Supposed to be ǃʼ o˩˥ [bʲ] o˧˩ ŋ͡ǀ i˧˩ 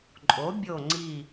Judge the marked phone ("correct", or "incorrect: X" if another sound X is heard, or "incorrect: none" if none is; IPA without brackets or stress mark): correct